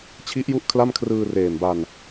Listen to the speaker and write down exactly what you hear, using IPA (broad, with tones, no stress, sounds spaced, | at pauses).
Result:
t͡ɕʰ i˦˥ ʔ j u˦˥ ʔ kʰ l a˥˩ m kʰ r ɯː˧ r eː˨˩ m b a˧ n